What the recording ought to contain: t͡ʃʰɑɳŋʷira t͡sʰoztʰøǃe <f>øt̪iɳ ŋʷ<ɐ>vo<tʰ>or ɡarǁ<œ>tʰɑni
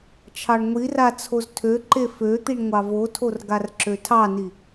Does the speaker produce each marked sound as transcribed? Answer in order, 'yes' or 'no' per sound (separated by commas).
yes, no, yes, no